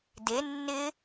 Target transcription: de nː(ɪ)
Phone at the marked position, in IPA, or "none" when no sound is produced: ɪ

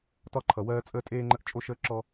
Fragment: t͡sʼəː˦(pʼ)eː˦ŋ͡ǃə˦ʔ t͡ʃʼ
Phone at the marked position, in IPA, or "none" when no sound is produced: tʼ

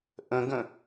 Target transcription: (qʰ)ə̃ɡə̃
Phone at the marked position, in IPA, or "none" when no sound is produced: ʔ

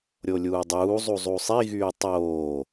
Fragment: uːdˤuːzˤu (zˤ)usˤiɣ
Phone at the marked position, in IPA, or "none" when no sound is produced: zˤ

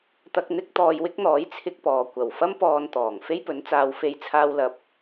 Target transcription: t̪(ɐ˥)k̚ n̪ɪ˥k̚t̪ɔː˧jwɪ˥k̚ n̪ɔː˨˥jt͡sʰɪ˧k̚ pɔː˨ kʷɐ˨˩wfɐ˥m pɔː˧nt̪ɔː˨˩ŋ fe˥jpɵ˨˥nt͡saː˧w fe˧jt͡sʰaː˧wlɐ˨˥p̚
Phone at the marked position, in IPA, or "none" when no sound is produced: ɐ˧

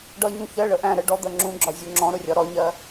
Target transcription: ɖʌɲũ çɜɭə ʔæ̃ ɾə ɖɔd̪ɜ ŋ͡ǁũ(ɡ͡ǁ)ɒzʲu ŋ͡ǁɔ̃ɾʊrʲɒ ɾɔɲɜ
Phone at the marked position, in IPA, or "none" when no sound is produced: ɡ͡ǁ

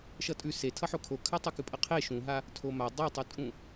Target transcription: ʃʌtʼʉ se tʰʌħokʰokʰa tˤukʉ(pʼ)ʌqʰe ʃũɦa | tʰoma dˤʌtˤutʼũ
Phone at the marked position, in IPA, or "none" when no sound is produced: pʼ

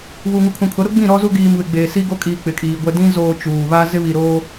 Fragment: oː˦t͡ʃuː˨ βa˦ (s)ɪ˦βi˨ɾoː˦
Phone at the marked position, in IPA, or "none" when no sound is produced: z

